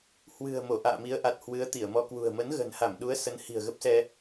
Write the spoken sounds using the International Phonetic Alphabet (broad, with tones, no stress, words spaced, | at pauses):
hwɨ̤˨˩ə̯ mo˧˩ʔa̰ː˧˨mi˨˦ə̯ʔa˨˩t̚ hwɨ˨˦ə̯t̪i˧˩ə̯mɔ˧ kwṳ˨˩ə̯ mə˨˦nɣə̤˨˩nha˧˩mɗu˨˦ə̯ sə˨˦nhi̤˨˩ə̯ɣə˦˥p̚sɛ˧